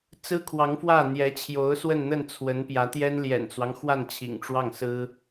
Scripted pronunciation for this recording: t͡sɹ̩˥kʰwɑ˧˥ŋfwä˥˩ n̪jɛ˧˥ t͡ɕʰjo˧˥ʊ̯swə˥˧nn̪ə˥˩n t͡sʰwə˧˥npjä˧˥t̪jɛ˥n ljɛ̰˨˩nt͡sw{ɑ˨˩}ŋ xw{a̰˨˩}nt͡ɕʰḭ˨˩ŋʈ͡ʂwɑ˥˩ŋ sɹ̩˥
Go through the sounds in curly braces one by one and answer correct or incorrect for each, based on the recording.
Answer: incorrect: ɑ˦, incorrect: a˥˩

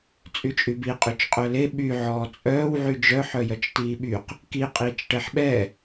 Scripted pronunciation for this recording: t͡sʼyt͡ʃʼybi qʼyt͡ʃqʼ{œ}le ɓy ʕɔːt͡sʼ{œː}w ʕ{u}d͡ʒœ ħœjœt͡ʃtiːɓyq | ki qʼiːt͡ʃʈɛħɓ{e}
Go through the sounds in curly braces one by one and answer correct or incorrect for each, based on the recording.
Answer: correct, correct, incorrect: y, incorrect: ɛ

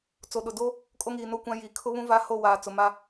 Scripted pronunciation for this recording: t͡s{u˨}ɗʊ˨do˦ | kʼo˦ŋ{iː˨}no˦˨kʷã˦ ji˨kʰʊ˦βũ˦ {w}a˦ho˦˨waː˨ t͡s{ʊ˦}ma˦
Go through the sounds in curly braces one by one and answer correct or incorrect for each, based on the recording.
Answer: incorrect: o˨, correct, incorrect: v, incorrect: ʊ˨

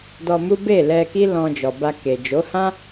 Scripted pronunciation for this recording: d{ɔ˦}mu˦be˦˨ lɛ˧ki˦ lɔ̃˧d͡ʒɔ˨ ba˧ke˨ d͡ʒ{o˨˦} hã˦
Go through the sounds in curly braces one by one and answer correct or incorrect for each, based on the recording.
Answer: incorrect: ɔ˧, correct

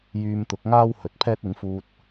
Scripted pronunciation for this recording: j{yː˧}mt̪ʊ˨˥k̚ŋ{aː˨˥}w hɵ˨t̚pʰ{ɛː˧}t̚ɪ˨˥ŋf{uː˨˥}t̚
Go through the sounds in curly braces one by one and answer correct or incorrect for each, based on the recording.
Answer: correct, incorrect: aː˥, incorrect: ɛː˥, incorrect: uː˧

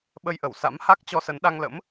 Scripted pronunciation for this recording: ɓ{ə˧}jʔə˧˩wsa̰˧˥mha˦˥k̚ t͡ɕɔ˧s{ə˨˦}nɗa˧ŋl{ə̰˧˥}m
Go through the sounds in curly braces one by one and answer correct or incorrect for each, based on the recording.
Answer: correct, correct, correct

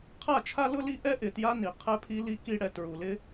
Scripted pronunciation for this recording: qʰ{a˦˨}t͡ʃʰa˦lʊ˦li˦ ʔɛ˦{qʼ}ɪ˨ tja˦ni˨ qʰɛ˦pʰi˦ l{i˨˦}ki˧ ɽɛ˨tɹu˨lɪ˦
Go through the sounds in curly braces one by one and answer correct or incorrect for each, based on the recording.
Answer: correct, incorrect: ʔ, incorrect: i˧

